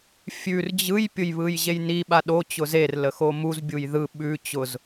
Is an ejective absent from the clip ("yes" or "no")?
yes